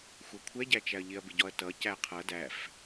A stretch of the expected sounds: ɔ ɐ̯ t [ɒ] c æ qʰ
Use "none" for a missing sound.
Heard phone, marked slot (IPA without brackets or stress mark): ʌ